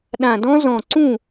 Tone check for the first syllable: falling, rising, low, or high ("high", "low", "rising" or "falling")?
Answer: low